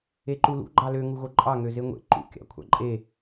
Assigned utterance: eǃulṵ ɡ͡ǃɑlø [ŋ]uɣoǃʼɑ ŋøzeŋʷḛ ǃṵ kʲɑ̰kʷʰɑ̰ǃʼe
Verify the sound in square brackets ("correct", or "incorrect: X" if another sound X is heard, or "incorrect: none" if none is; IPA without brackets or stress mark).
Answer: correct